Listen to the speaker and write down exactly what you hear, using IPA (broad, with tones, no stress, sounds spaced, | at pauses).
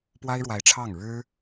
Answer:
p w a˥ ɪ̯ ɻ w a˧˥ ɪ̯ ʈ͡ʂʰ ɑ˥˩ ŋ ɻ ɻ̩˥